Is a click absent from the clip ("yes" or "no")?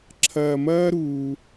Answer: no